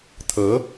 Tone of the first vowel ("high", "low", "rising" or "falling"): rising